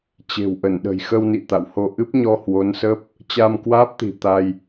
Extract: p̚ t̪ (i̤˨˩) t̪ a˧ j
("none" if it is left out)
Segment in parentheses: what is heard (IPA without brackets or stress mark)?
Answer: i̤˨˩